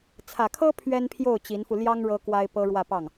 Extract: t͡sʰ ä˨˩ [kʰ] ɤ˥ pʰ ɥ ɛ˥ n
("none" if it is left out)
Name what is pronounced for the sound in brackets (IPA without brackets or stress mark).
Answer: kʰ